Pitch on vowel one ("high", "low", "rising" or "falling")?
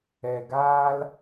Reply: low